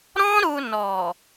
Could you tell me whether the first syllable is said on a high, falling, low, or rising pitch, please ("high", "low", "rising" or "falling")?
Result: high